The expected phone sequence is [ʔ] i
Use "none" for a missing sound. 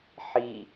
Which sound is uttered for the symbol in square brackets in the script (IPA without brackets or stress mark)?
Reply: ħ